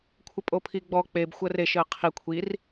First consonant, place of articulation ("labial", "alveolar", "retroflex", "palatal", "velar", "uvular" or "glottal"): velar